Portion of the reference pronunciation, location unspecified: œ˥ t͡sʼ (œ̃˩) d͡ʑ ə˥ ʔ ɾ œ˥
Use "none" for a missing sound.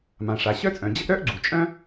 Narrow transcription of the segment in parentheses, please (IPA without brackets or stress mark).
œ̃˩